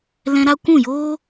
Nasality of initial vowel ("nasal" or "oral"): nasal